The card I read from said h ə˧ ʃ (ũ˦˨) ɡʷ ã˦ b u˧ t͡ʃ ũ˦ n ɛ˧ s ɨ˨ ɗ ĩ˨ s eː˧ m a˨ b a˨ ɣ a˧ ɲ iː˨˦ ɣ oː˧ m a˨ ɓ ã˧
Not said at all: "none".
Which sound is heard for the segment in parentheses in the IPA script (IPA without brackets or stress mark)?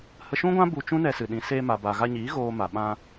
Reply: ũ˦